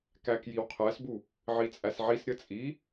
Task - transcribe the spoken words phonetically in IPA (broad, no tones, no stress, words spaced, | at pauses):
kækjiwqʰæsbu | ʕit͡sʼæsʕisɾʲə t͡sʼi